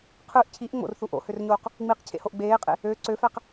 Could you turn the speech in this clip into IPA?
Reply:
qʰ ɯ ʔ cʰ i ʔ ŋ͡m o̰ r θ u ʔ o̰ h ø r ɲ oː q | ŋ͡m i q cʰ ḛ h o ʔ ɡ͡b eː qʼ ḛ | ø ǀ ø f æ q

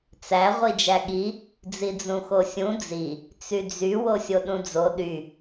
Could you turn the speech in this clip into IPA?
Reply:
t͡s æ ʁʷ i d͡ʒ æ ɠ i | d͡z i d͡z ũ x o sʲ ũ d͡z i | t͡s y d͡z y w o sʲ o ɗ ũ d͡z o ɗ y

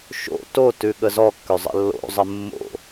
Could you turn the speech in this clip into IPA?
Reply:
ʃ o̰ t o t ʉ ɠ ə z ɔ kː ø zˤ ə̰ lː o̰ zˤ ə mː o̰

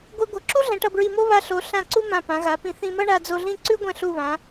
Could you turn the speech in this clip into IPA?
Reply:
ɡʷ i˧ ɡʷ ʌ˩˧ ǁ u˥ ɮ ɛ̃˩˧ ʈ ʌ˧ b ɹ i˧˩ m o˥ β a˧ ɬ o˩˧ ɬ ã˧˩ ǀ u˥ m ã˧˩ p ã˩˧ ɣ a˩˧ p ĩ˧ θ ĩ˧ m ʌ˥ ɳ a˧ d͡z o˧ ɮ ĩ˥˧ ǀ ʉ˥ ɡʷ ɛ̃˧ ɬ u˧˩ β ã˩˧

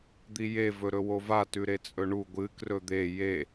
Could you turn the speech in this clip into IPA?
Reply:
d̪ i j e v ɵ ɾ ɵ w o v a t ʉ ɾ e t͡sʼ ɵ ɳ u ɡʷ ɨ k r ɵ d̪ e j e

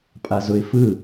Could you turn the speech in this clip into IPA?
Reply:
pʼ a z ʊ ɪ̯ f ɯ

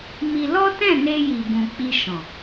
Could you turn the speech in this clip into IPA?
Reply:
m i˧ l ɔ˦ t ɛ̃˦˨ n e˧ j i˨ b ũ˨ k͡p i˧ ʃ ɔ̃˨

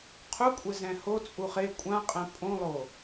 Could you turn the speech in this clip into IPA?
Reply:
qʰ u kʷʼ ɪ z ɛ̃ h o t͡sʼ u χ e kʷʼ ã qʼ ɛ̃ pʼ õ lˠ o

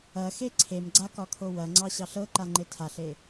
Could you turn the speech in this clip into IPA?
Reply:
ɐ x e ǀʰ e m ɡ͡ǀ a k ɒ kʰ o w ɐ ŋ͡ǀ ɑ ɕ ɑ ɬ ɤ ǃ a ŋ͡ǃ e tʰ a ɬ e

